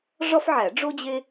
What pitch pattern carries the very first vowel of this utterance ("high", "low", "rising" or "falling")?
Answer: high